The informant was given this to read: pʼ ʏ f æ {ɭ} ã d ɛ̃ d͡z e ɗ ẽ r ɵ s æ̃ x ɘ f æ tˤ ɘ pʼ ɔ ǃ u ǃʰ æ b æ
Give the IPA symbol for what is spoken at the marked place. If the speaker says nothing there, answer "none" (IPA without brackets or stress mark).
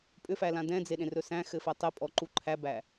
l